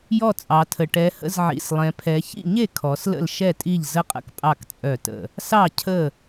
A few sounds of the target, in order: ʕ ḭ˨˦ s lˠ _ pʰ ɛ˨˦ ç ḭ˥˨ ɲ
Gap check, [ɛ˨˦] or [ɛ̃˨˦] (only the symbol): ɛ̃˨˦